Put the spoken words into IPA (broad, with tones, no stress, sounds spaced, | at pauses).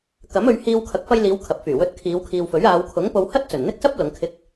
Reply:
k ɐ˨˥ m ɵ˨˧ ɥ h iː˧ w kʰ ɐ˨˥ k̚ f ɐ˧ j l iː˨˧ w kʰ ɐ˨ p̚ f yː˨˩ w ɵ˧ t̚ kʰ iː˨˧ w kʰ iː˨ w f ɵ˨˥ ɥ aː˨˧ w kʰ ʊ˨˥ ŋ p o˧ w h ɐ˥ t̚ t͡s ɵ˨˩ n n̪ ɪ˥ k̚ s ɐ˥ p̚ l ʊ˨˧ ŋ kʰ ɪ˧ k̚